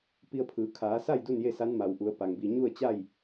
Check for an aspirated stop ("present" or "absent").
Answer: present